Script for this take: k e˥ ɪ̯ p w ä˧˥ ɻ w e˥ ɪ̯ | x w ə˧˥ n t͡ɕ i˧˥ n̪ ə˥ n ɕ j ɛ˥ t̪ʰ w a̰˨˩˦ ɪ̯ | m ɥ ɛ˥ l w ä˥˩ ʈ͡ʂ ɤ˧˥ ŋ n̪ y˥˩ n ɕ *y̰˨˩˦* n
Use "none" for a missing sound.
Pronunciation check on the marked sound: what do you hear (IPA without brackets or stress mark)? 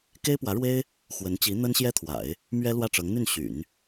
y̰˨˩˦